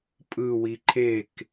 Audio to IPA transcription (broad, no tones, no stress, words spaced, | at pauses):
pʼɯwi ǃʰek